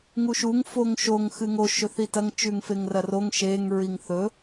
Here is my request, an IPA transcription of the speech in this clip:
ŋ u ʃ u ŋ f o ŋ ʃ o ŋ x ɨ ŋ o ʃ ɵ θ i t ɐ ŋ t͡ʃ ʉ ŋ f e ŋ r ɐ r o ŋ ʃ e ŋ ɹ i ŋ θ ɵ

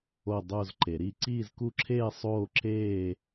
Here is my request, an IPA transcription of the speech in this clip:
o˥˧ dˤ o˥˧ z ǃ e˨˩˦ ɾ i˥˧ ǀ iː˥˧ z k u˥˧ ǁʰ eː˥˧ sˤ oː˥˧ ǁ eː˥˧

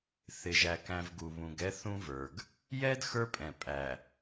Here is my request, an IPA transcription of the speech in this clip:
θ ɪ˨ ʒ æ˨ k æ̃˨ v ɡ u˨ β ũ˨ ɡ ɛ˦ θ ũ˦ v ə˞˨ ɡ | j ɛ˦ d x ə˞˦ pʼ ɛ̃˨ pʼ æ˨

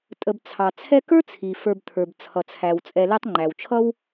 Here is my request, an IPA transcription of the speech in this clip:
tʼ ə˨ b t͡sʰ ɑ˩ t͡sʰ ɛ˦ k ə˞˥ t͡sʰ i˩ f ə˞˨ b t̪ʰ ə˞˩ b t͡sʰ ʌ˩ t͡sʰ æ˩ w t͡sʼ ɛ˨ l ɛ˦ tˤ ŋ͡ǃ æ˩ w t͡ʃʰ ʌ˥ w

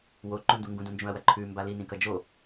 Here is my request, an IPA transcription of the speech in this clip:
w o ǃ ũ n d u ŋ ɡ ũ d ũ n d͡ʒ ũ ɐ̯ w ɐ ǃʰ ʉ m b a l i n ĩ k ɐ d͡ʒ o

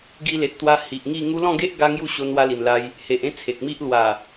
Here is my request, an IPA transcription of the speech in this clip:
ɡ i˧ l e˨ t̚ t̪ w a˧ h i˨ ʔ ŋ i˥˧ ŋ u˦ l ɔ̃˥˧ ɡ e˦ ʔ ɡ a˦ ŋ j u˥˧ ɕ o˧ n w a˧ l i˨˩ n l a˧ j | h e˨ ʔ ẽ˥˧ t͡sʰ e˨ k̚ m i˦ ʔ l w a˨˩

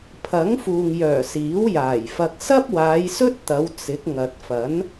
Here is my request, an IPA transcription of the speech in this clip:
pʰ ɐ˨˥ ŋ f uː˨ ŋ j œː˨˩ s iː˨˥ w j aː˨˩ j f ɐ˧ k̚ s ɐ˥ p̚ w aː˨˧ j s ɵ˥ t̚ t̪ ɐ˨˧ w t͡s ɪ˨˥ k̚ ŋ ɐ˨ t̚ f ɐ˨˥ n

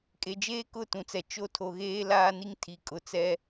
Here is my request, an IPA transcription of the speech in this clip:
kʼ e˨ d͡ʒ eː˦ k ʊ˦˨ t ũ˨ t͡s ɛ˨ t͡ʃ o˦ tʰ o˨ ɣ eː˦ l aː˦ n i˦ ŋ tʰ i˨ kʼ ʊ˨˦ t͡s ɛ˦

